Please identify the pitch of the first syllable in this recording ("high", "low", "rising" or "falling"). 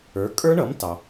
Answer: rising